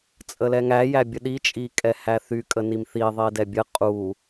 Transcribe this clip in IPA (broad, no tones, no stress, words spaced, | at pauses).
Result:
t͡sʼəlɛŋæ jæbʲəɗi t͡ʃʼikʼɛhæθy kʼənimθi ðˤidɛbʲə qʼu